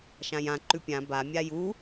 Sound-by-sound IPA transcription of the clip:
ʃãjã ǃʉpʲã ba mʲaju

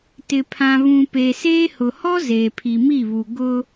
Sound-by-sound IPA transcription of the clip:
tɪ˨ pʰã˨βũ˨ pe˨seː˦ hʊ˨hɔ˦ zeː˨pʰi˨mi˦˨βu˨ ɡʊ˦

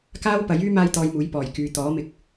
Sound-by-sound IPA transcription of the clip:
kaː˥wpɐ˨˥jyː˥ maː˥jt̪ɔː˧jmuː˨˥j pɔː˨˩jkyː˨ t̪ɔː˨˥mɪ˧k̚

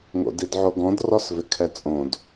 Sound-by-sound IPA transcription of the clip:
ŋo̰didʕoɡɔ̃d rɔsvɪkʰɛt͡sʼõd

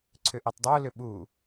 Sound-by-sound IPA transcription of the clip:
ǀʰʏʔitˤdˤo lʏɓu

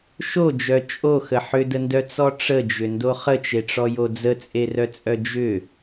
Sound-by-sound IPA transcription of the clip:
ʃod͡ʒœ t͡ʃʼoxə ħʏdəndœt͡sɔ ʈ͡ʂəd͡ʒʏndo χət͡ʃeʈ͡ʂɔjo d͡zət͡sʼerœt͡sʼœ d͡ʒʏ

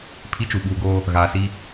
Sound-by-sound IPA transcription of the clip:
pʰi˦t͡ʃu˨ɓuː˨ɡoː˦ | ɣaː˨si˦

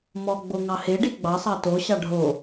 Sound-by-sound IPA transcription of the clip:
mɔɡ͡bo ŋɑheɖi ɡ͡bɑsˤɑ to ɕɑɖʱo

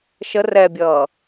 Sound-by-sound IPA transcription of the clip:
ʃə rɛbʲʌː

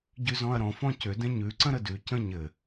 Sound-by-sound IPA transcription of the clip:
ɟʉzɔ̃ɐ̯ɾɔ̃ fɔ̃cʏ dɛ̃ɲʉ ǀə̃ɾədʉ cə̃ɲɘ

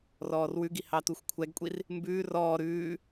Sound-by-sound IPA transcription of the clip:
rɔːrwʉɡi hɑtuxʷkʷʰɛɡkʷʼir | mbʉː rɔː ɾʉː

